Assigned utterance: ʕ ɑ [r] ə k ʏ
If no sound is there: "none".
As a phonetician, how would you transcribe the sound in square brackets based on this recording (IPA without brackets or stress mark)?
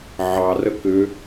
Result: r